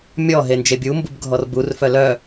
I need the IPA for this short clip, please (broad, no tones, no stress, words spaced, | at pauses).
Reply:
mʲɔ ɦend͡ʒebʲu mbubɡʱɔrbur fœlœ